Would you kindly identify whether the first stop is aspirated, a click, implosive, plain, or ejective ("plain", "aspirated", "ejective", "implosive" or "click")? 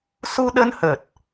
implosive